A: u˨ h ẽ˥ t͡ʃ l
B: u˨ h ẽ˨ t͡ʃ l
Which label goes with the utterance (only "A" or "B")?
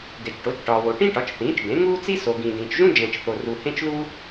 A